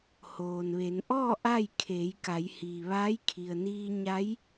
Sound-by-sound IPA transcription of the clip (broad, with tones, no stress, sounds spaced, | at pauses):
h oː˩ n ʋ e˩˧ n ʔ ɔː˥˨ ʔ a˥˨ j kʰ eː˩˧ j k a˩˧ j h iː˩ ʋ aː˧˥ j kʰ i˩ ə̯ n iː˧ ɲ a˧˥ j